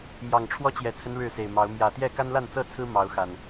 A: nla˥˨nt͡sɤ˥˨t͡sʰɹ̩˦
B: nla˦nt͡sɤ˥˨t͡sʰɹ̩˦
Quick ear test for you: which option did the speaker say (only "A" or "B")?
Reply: A